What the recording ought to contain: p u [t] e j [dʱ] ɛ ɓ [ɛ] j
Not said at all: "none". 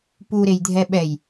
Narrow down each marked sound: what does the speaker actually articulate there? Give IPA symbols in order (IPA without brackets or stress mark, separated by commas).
ɾ, dʱ, ɛ